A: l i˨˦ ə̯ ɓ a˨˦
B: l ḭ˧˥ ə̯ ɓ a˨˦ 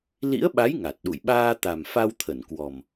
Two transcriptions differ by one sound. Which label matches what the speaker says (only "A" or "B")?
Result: B